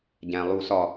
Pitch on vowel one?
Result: low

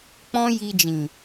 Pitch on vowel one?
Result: high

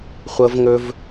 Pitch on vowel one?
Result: high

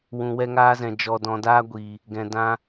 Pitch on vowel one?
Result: low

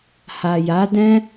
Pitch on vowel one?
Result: low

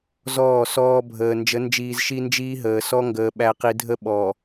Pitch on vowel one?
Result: falling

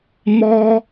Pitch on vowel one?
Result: high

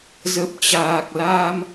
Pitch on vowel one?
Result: low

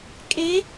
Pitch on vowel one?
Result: rising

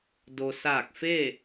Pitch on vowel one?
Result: low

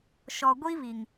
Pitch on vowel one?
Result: low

